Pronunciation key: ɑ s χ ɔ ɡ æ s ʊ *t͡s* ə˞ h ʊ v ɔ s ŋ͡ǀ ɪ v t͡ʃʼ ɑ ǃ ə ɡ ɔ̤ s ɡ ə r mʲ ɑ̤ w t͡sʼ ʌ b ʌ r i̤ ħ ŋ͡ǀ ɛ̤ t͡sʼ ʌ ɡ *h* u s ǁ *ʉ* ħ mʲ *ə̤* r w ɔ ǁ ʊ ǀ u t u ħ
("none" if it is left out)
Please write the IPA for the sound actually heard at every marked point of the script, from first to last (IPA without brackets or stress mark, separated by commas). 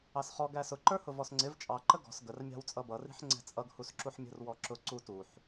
ǃ, h, u, ə̤